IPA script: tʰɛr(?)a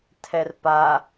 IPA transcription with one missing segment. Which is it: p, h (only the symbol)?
p